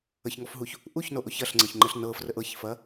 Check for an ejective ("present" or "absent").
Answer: absent